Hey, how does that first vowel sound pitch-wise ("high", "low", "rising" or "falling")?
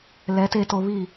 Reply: rising